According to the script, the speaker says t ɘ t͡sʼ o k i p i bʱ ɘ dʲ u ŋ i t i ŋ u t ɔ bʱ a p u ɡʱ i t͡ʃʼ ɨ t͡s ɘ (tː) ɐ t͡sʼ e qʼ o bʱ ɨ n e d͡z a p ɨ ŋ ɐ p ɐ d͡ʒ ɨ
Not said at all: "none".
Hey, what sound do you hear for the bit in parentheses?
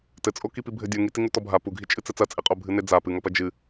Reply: t͡s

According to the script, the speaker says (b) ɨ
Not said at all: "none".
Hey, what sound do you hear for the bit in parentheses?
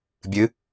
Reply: bʲ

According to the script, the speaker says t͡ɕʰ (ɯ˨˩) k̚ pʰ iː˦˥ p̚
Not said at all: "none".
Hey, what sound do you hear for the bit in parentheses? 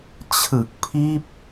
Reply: ɯ˨˩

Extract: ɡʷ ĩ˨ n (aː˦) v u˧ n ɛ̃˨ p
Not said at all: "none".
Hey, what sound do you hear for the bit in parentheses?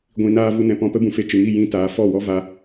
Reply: aː˧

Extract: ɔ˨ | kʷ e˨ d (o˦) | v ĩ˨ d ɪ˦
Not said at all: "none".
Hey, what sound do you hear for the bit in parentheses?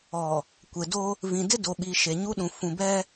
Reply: o˦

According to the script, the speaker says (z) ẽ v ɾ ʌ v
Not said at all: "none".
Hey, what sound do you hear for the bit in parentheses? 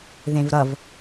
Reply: ð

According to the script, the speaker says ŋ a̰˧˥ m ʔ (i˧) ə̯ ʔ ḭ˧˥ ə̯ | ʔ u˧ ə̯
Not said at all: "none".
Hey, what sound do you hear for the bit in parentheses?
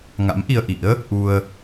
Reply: i˧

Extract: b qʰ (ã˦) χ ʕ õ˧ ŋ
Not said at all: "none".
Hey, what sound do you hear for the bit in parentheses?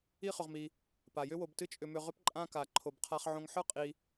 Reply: a˦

